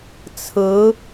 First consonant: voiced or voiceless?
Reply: voiceless